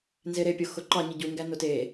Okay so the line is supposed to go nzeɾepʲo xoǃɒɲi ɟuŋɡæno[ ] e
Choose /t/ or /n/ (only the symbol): t